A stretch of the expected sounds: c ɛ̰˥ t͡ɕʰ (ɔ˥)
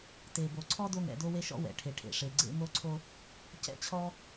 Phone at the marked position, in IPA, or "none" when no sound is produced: ɔ˥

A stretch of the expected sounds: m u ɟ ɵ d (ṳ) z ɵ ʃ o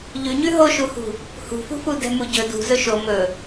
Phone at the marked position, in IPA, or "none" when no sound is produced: ṳ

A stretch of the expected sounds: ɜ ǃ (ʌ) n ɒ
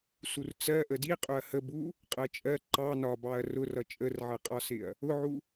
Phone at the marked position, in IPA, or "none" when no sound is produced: ɑ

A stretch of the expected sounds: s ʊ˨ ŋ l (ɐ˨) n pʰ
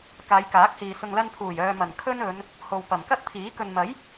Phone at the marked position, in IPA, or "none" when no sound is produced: ɐ˧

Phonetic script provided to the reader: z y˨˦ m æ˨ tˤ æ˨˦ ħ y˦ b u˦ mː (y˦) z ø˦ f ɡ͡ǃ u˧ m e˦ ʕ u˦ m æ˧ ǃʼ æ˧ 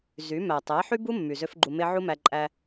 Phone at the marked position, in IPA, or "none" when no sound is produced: y˨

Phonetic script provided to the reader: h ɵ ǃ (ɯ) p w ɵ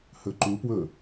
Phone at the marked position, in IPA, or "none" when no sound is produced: u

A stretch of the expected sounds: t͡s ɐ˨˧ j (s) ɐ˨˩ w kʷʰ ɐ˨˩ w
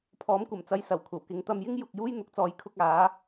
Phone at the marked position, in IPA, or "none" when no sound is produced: s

